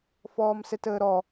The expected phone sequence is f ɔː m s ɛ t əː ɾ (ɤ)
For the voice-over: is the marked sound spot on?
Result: no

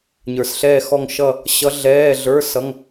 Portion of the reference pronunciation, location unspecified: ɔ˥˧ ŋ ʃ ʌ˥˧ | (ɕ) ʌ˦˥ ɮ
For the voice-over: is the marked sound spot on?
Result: yes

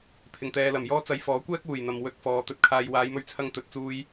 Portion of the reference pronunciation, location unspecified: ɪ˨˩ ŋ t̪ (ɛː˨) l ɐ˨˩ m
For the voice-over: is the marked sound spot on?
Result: yes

